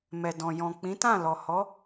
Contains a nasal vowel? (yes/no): yes